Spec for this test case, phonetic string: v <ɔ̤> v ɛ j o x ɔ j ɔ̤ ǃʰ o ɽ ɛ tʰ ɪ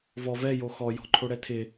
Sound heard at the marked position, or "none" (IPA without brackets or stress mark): ɔ